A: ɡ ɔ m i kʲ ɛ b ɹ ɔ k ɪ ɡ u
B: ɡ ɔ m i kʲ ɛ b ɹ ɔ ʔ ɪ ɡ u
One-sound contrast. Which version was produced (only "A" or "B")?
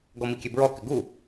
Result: A